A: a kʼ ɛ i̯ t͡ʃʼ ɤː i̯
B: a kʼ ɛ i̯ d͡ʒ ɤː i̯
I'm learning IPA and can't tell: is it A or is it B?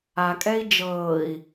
B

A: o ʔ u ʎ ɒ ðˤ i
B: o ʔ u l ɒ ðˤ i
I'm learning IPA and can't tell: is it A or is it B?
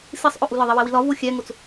B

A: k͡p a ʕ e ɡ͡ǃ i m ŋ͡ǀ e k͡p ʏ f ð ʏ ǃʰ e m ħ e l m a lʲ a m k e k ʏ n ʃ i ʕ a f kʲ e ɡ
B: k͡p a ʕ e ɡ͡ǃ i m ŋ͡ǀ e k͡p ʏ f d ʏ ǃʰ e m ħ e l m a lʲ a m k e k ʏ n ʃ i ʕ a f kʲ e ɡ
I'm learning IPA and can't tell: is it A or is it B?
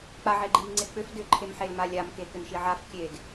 B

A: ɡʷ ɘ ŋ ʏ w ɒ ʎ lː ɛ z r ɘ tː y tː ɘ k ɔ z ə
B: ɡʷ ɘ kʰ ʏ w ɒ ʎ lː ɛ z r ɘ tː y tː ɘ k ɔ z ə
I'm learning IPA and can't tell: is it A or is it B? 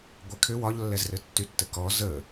B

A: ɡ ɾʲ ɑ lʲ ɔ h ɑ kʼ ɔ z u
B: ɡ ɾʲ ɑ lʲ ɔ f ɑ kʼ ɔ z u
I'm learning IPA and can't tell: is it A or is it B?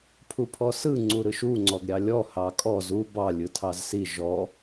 A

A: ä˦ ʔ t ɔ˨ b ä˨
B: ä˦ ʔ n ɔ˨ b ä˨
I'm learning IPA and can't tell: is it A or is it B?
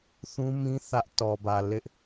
A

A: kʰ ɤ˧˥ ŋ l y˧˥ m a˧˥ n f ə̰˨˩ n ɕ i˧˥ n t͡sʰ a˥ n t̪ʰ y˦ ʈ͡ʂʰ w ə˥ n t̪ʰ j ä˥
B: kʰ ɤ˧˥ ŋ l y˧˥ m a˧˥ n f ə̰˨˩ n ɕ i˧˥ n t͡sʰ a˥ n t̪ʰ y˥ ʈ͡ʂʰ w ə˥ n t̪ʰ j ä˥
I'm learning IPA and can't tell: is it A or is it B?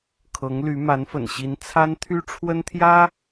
B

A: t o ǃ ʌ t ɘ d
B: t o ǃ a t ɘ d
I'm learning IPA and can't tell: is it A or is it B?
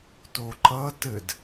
A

